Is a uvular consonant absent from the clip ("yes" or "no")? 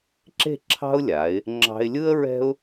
yes